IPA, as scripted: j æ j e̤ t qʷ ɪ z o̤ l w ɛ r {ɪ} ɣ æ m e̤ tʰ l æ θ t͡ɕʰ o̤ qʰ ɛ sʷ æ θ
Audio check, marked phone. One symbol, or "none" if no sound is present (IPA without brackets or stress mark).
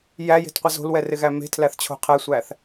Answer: ɪ